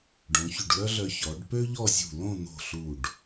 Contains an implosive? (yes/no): no